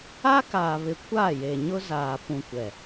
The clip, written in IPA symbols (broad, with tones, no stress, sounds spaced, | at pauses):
a˦ k aː˨ β ɪ˨ kʷ aː˦˨ j e˨ ɲ ʊ˦ z aː˨ p ũ˨ kʷ ɛ˨